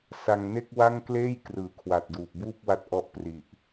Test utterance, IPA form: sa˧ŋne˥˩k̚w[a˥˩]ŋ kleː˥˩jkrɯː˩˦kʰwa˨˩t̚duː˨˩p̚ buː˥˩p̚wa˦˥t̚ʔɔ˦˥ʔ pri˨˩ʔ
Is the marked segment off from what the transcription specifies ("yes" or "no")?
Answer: no